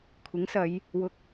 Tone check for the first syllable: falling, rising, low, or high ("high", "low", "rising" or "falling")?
rising